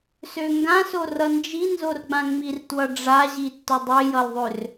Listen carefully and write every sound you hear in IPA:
s ø ŋ ɡ ã s o r ʌ n d͡ʒ i n z o r ɡ͡b ã ŋ͡m i r t w ʌ ɖ͡ʐ a ʑ i tː ʊ dˤ i j ʌ l ðˤ ø r

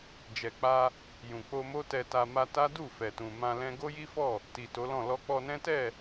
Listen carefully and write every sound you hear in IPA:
d͡ʒ ɛ˨ k͡p a˧ | j ũ˨ k͡p o˧ m o˦ t ɛ˧ t a˧ m a˧ t a˦ d u˦˨ f ɛ˨ t ũ˨ m ã˧ l ɛ̃˦ ɡ o˦ j i˦ f ɔ˦˨ | t i˨ t o˨˦ l ɔ̃˦˨ l ɔ˧ k͡p ɔ˧ n ɛ̃˦ t ɛ˦˨

